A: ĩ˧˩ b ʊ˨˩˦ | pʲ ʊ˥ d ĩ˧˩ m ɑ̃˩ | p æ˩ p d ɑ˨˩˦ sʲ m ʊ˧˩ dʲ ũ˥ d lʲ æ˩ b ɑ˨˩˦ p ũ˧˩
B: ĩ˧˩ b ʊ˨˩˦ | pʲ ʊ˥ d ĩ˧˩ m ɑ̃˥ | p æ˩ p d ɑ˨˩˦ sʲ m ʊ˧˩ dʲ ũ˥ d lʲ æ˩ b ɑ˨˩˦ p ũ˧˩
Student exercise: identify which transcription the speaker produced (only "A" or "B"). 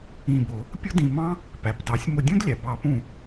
B